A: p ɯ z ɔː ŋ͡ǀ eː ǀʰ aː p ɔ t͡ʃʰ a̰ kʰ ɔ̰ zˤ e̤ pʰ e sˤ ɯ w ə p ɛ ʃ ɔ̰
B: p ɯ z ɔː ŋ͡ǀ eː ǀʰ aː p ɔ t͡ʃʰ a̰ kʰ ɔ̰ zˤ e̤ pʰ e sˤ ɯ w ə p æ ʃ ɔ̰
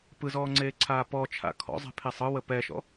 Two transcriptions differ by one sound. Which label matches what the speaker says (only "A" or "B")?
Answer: A